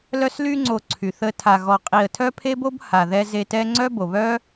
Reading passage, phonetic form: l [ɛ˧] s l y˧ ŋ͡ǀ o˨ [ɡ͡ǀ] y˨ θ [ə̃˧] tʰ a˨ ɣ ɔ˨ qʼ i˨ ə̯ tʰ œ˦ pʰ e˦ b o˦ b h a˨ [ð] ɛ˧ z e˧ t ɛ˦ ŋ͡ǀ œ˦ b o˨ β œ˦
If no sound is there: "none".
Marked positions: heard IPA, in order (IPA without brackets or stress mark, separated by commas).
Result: œ˧, ǀʰ, ə˧, ð